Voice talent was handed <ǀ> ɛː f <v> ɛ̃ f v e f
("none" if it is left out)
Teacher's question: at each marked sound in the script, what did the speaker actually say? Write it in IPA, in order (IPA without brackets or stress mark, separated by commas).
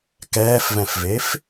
k, v